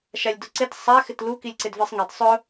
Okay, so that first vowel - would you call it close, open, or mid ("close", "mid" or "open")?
open